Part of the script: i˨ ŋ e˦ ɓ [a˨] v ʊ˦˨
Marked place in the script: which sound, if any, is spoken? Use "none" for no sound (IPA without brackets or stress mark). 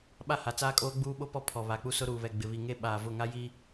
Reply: aː˨